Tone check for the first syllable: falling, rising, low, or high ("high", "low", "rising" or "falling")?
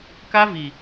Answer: high